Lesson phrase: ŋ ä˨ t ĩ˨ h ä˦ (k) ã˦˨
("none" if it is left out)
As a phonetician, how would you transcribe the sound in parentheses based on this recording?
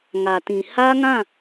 ŋ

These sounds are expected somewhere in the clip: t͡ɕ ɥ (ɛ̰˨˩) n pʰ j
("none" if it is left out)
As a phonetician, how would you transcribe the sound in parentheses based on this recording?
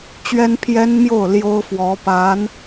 ɛ˥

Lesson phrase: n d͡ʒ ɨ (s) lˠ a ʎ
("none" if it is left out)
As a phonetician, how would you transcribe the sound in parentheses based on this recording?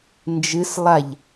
s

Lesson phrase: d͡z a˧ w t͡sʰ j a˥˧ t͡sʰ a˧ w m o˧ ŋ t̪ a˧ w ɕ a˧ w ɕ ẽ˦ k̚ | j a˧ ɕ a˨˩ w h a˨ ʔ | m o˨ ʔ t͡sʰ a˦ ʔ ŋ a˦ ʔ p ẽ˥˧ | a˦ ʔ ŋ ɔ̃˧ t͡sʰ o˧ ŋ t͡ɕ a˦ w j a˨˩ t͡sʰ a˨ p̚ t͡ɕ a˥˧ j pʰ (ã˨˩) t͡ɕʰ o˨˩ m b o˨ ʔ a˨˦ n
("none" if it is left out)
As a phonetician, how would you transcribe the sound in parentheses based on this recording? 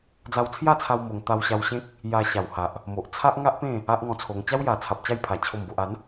a˨˩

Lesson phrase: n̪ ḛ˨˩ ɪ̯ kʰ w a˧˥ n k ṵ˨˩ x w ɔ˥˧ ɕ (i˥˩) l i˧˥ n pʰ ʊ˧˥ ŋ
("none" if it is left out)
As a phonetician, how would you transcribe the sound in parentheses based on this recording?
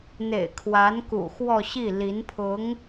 i˥˩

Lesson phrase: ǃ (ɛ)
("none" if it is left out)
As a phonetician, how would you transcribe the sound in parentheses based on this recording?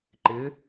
ɪ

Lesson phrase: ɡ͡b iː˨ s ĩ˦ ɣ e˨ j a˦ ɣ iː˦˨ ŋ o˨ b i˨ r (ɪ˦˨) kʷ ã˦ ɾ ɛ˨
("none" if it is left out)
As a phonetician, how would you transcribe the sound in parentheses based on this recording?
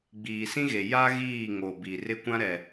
ɪ˦˨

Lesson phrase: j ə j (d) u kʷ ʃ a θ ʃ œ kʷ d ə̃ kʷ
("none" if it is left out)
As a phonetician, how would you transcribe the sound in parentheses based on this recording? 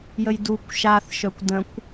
d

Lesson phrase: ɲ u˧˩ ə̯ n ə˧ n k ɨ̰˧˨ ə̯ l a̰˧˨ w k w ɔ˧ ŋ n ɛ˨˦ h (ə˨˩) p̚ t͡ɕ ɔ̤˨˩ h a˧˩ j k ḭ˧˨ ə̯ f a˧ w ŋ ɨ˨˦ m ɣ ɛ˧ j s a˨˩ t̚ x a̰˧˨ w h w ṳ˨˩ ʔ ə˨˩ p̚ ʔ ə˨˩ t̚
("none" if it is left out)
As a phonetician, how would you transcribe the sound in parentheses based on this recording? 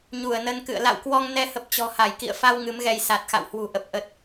ə˨˩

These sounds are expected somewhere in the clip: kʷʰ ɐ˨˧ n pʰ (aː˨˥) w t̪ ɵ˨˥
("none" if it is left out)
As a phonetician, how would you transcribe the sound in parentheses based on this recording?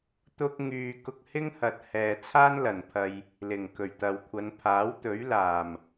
aː˨˥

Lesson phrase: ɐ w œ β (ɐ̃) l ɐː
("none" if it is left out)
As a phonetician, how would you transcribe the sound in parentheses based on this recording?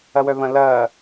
ɐ̃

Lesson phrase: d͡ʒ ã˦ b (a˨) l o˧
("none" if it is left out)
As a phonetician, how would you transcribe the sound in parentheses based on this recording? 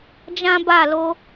a˦˨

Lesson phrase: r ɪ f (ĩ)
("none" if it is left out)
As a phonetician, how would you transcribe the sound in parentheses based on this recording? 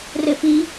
i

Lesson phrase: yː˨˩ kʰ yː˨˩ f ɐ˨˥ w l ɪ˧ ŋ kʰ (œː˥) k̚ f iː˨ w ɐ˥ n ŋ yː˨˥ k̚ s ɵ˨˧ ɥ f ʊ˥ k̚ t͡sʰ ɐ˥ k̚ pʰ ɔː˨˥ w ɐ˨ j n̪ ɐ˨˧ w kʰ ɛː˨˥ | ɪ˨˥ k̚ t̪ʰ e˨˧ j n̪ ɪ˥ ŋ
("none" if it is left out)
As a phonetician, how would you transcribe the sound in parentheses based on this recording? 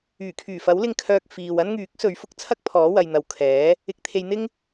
œː˧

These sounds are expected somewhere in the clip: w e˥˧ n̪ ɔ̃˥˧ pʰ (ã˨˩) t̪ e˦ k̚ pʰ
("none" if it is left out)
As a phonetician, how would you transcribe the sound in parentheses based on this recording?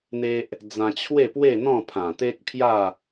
ã˨˩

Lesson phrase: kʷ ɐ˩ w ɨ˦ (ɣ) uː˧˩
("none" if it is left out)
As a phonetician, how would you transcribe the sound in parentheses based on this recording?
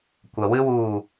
w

